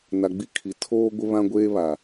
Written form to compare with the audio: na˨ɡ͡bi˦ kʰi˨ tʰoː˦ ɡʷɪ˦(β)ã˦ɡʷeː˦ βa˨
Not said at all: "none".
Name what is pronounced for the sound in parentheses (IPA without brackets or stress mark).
β